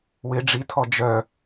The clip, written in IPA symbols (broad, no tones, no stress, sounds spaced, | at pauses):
w ɪ ɖ͡ʐ i tʰ ɔ d͡ʒ œ